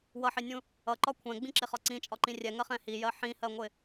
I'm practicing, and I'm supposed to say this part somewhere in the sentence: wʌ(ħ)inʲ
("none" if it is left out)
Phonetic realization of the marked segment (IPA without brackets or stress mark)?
ħ